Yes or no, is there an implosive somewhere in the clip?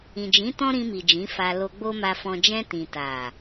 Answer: no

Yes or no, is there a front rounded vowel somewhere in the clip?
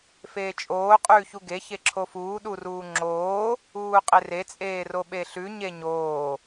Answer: no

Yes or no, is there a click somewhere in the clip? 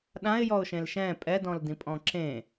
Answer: yes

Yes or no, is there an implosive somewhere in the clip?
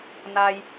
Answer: no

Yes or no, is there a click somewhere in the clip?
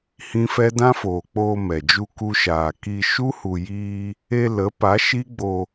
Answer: no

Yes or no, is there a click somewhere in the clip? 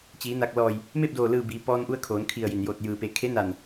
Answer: no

